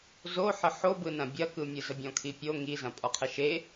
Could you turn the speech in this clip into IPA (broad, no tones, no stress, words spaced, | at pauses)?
zoħə ħobɯnɐ̃ bʲɐkɯmʲɯ zəbʲɔ̃kʰipʲo ŋizɐ̃ pʼɔqʰɛʃe